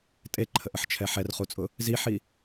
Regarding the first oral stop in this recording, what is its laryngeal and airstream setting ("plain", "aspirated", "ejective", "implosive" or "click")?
ejective